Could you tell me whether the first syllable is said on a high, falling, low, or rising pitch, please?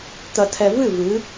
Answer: low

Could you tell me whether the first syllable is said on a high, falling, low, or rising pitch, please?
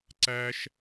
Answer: high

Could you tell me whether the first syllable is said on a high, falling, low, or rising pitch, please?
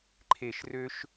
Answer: falling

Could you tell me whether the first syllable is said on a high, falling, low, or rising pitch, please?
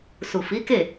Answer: low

